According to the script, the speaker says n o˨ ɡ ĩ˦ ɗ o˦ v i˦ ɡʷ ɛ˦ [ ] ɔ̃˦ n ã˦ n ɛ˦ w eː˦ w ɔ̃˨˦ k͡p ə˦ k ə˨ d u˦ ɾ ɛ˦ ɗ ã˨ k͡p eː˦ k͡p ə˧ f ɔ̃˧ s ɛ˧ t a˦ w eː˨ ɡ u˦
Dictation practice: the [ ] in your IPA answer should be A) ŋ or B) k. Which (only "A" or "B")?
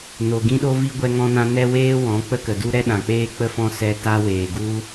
A